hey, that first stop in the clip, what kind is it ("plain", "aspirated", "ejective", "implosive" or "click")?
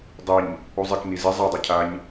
plain